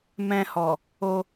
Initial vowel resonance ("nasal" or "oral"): nasal